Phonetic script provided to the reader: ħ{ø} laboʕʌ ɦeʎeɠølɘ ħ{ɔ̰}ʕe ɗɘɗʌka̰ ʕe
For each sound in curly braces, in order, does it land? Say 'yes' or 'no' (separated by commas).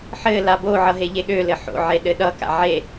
no, no